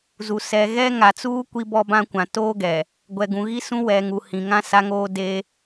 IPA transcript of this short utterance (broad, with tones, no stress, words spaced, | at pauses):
zu˨ sɛ˨ɣɛ˦ŋa˨t͡suː˦ kʷi˦bɔ˦bã˦kʷã˨ toː˦ɡɛ˨ | ɡʷɛ˨ɡũ˨ɣi˦sũ˦ wɛ˨ŋu˨ hĩ˨ŋã˦sa˦ŋoː˦ de˦